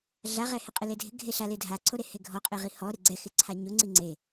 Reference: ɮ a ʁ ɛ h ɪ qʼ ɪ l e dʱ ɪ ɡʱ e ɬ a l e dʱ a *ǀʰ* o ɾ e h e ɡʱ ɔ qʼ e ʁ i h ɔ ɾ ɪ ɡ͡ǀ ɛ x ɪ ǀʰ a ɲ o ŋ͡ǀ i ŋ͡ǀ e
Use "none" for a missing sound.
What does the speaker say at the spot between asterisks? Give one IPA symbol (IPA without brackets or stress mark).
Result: ǀʰ